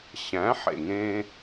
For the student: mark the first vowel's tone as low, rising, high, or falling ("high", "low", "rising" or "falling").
rising